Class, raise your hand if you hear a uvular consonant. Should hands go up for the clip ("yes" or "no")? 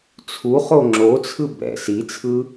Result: yes